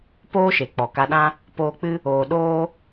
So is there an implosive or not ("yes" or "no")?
yes